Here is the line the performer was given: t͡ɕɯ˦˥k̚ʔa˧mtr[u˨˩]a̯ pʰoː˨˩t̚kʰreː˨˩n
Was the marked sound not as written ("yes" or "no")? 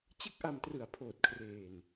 yes